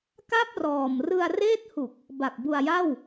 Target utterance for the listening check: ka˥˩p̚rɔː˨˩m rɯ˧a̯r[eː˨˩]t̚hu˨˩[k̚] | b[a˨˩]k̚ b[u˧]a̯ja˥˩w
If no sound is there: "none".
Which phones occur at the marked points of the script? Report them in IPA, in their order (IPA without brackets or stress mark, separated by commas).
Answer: eː˥˩, k̚, a˨˩, u˧